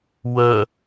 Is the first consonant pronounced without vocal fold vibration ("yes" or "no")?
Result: no